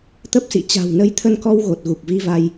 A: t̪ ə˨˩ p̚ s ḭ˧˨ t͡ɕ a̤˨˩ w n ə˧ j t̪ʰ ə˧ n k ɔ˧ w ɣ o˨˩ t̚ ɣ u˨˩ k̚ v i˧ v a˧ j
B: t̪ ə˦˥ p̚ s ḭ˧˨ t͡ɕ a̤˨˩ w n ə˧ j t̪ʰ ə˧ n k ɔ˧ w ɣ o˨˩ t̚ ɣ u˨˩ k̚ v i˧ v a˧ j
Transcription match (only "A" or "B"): B